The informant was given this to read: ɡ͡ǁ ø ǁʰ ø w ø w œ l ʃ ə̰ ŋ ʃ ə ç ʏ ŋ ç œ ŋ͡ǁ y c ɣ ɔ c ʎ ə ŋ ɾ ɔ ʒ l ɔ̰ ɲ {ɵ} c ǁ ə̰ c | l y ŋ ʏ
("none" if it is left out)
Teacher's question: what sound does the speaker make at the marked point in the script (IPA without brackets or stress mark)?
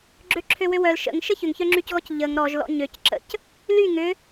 ø